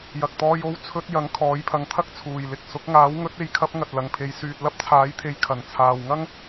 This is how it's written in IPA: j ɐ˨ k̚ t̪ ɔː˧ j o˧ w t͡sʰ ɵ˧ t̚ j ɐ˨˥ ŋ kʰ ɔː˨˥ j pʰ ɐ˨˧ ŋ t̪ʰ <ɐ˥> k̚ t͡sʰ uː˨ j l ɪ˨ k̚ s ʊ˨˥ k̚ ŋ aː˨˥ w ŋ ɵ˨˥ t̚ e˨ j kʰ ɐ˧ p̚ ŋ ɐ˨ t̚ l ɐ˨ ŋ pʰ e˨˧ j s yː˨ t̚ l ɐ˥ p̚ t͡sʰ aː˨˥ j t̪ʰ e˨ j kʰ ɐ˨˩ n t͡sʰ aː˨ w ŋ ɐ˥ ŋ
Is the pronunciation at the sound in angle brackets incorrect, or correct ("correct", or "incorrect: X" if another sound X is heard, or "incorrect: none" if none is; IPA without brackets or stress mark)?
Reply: correct